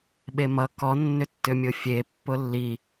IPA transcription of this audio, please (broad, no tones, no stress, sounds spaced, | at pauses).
ɓ e m ʌ k ɔ nː ʏ tː ʏ mʲ ʊ fʲ e pː ʊ lː i